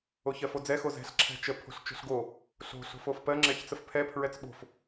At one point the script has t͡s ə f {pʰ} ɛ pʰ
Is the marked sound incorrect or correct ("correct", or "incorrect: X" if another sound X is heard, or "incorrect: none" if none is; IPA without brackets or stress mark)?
correct